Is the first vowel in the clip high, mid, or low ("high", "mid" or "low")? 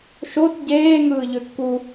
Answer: mid